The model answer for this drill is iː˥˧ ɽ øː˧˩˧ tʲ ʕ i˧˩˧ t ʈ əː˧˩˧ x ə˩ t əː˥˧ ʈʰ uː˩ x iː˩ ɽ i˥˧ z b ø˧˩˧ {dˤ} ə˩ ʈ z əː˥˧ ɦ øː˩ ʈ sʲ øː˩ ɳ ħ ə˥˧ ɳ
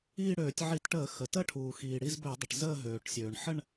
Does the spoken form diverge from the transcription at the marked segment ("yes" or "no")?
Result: no